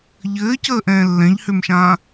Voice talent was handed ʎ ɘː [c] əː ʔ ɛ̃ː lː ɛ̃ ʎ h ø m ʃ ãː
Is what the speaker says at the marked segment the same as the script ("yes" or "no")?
yes